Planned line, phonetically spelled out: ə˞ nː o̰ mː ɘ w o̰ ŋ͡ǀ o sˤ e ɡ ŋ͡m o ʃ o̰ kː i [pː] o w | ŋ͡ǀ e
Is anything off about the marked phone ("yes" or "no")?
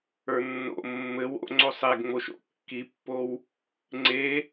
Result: no